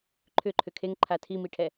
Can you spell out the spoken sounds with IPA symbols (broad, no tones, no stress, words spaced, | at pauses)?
ǃʰʏǃʰʏ kʰeŋǃʰa tʰimiʈʰɛ